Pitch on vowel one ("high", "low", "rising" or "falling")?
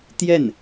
falling